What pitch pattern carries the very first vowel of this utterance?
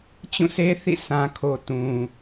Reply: falling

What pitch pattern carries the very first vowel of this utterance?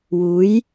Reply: rising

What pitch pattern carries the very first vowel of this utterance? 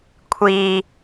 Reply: low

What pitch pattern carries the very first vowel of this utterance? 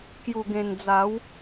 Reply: low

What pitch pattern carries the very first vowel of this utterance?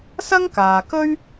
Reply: high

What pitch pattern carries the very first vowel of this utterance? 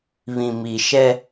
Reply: low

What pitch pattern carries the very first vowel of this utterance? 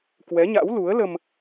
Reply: rising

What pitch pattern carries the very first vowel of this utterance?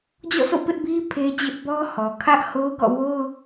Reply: falling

